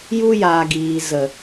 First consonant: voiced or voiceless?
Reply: voiced